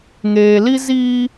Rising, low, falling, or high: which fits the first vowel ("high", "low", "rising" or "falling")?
low